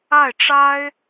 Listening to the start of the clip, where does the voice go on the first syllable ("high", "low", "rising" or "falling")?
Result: falling